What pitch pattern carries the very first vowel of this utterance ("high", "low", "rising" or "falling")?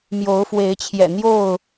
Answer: rising